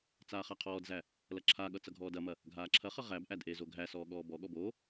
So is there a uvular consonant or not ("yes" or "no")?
yes